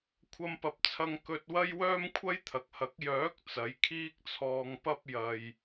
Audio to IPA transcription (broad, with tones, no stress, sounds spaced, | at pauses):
kʷʰ ɐ˧ m p ɐ˨ p̚ t͡sʰ ɐ˧ ŋ k ɵ˧ t̚ w ɐ˥ j w œː˥ m kʷʰ ɐ˥ j t̪ʰ ɐ˨ k̚ h ɐ˨˥ k̚ j œː˨˥ k̚ t͡s ɐ˨˥ j kʰ iː˥ k̚ t͡sʰ ɔː˧ ŋ p ɐ˥ p̚ j ɐ˨ j